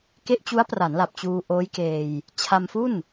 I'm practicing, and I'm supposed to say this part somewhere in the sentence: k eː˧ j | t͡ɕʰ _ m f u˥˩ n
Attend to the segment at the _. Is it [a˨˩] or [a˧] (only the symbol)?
a˧